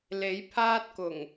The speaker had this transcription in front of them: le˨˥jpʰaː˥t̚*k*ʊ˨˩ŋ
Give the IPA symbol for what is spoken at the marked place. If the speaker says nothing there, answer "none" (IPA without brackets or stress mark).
k